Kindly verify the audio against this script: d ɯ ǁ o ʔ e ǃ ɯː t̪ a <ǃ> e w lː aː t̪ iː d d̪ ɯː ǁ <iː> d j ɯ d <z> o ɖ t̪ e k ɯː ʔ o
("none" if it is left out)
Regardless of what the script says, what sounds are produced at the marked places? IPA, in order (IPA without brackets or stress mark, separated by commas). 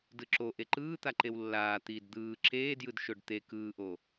ǃ, eː, ʃ